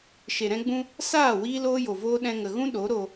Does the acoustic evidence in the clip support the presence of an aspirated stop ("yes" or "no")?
no